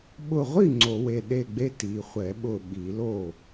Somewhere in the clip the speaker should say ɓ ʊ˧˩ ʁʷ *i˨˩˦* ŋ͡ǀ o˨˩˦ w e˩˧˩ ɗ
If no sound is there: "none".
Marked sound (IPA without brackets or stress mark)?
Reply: i˥˩